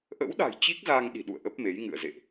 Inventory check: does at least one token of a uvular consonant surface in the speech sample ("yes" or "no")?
no